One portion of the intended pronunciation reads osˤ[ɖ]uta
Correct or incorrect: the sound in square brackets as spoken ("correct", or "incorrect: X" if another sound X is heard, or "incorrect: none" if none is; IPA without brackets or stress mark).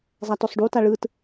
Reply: correct